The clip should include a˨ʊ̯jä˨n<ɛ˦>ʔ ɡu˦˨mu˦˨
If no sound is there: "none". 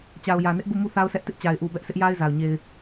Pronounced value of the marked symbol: ɪ˦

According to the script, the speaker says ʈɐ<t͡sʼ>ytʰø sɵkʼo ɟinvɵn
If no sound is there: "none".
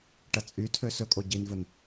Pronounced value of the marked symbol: t͡sʼ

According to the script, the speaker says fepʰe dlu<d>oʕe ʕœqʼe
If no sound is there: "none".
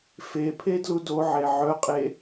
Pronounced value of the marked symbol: d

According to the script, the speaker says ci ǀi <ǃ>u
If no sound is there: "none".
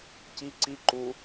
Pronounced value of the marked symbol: ǃ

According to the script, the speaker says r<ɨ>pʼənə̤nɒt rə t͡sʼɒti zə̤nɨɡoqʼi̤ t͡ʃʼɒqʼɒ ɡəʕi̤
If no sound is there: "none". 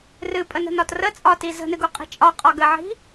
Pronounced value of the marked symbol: ɨ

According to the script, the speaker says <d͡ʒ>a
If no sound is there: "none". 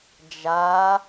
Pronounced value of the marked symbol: d͡ʒ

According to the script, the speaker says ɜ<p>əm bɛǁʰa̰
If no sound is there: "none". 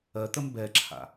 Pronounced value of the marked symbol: t̪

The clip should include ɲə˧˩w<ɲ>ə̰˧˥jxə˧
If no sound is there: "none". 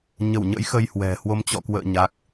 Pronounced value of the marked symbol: ɲ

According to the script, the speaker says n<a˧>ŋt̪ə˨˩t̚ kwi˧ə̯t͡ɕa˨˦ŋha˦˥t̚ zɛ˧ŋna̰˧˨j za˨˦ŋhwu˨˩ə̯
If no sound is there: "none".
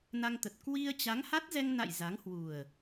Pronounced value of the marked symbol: a˧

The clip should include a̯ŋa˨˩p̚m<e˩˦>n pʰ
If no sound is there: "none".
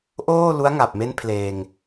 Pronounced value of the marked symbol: e˦˥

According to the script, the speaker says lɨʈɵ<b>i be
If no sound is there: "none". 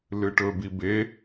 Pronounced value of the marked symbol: b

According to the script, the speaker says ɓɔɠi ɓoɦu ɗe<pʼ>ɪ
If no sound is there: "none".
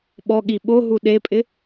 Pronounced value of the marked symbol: pʼ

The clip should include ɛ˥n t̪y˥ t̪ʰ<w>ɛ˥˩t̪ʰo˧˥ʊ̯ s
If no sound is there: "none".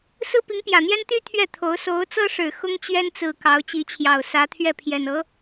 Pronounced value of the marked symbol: ɥ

